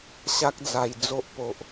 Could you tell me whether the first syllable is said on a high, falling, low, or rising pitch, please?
high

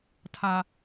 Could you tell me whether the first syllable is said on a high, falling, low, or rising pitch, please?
low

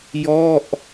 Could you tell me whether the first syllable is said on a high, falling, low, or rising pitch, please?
falling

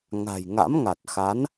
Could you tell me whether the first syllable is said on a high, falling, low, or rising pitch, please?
low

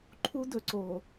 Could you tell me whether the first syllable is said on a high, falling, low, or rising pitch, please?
high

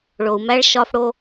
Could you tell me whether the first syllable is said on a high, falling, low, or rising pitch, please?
low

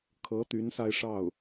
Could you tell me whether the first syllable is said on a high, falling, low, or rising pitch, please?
rising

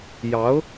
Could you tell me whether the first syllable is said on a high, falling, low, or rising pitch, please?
rising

